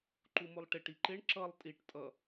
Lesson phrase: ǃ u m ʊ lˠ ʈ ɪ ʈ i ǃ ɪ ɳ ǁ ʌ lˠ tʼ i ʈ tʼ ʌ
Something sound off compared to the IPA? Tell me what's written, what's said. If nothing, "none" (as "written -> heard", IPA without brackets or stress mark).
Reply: none